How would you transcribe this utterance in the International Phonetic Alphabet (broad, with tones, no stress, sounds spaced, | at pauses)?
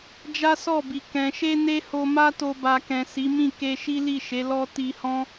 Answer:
d͡ʒ a˦ s ɔ˦˨ b i˨ k ɛ̃˨ ʃ e˧ n e˦ h o˧ m a˦ t o˧ b a˨ k ɛ̃˨ s i˨˦ m ĩ˦˨ k e˧ ʃ i˦ l i˦˨ ʃ e˨˦ l ɔ˦ t i˧ h ɔ̃˦